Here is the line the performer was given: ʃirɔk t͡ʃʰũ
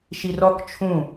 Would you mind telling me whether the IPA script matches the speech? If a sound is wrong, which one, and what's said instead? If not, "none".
none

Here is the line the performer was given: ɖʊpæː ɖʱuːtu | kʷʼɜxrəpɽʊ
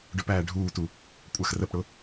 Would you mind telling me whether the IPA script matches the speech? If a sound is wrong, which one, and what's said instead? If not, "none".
none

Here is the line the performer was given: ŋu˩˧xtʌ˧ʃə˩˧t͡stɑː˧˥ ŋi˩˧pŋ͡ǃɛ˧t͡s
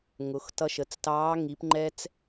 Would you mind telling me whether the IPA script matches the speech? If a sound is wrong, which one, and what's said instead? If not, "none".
u˩˧ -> ʊ˩˧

